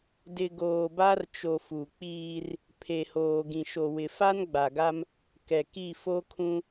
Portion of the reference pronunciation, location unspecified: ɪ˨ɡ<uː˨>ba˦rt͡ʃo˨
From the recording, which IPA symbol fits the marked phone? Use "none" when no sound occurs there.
oː˨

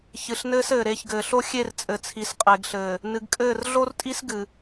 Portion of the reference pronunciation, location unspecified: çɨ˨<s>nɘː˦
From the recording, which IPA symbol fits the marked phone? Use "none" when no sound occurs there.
ɬ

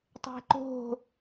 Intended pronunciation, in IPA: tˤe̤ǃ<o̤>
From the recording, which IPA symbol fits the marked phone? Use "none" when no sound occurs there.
o̤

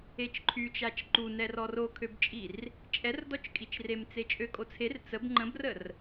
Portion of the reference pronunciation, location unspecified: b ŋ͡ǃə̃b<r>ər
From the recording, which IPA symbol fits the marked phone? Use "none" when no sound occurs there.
r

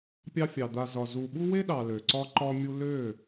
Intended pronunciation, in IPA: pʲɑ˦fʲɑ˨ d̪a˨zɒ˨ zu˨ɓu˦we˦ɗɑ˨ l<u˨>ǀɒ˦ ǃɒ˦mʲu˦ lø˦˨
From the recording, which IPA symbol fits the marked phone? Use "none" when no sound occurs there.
ø˨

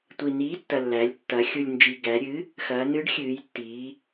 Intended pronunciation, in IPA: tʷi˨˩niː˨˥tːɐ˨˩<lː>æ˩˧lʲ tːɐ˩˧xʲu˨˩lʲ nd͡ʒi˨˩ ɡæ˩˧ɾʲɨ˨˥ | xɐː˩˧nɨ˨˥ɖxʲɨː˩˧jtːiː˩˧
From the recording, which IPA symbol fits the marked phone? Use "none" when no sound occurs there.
lː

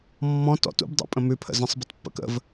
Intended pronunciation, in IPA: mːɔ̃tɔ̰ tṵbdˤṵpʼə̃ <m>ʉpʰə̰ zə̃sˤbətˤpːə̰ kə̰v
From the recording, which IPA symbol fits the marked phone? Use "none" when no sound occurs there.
m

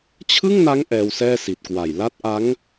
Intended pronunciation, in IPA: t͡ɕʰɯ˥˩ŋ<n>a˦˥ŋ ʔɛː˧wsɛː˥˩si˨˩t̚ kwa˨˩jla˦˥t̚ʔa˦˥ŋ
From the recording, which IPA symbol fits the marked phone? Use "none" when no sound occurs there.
n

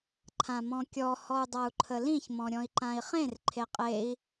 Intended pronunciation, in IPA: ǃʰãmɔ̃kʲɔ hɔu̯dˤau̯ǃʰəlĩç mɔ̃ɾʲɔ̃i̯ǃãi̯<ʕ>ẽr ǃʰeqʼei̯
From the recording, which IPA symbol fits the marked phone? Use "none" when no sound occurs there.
χ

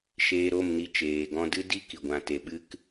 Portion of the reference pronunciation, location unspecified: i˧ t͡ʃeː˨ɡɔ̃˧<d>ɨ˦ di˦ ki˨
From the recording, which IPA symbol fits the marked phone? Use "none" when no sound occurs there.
d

